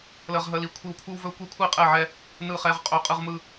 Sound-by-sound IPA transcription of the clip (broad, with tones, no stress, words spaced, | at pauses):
lə˦ʁɦə˦li˦kʷʰi˥˨w kʷʰɯ˦wvɵ˦kʷi˦kʷʰi˥˨ qʼɛ˥˨ʕɛ˦ | nɯ˥˨χɛ˦ʁqʼɵ˥˨ qʼɯ˦ʁmɯ˦